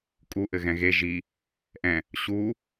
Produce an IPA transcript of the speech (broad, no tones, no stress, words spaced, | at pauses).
kʼu ʔɘɣɛ̃ɣe ʒi | ʔɛ̃ | ɕu